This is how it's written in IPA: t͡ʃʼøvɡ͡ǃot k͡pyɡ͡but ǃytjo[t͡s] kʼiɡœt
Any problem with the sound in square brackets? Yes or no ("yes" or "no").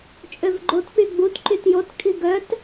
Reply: yes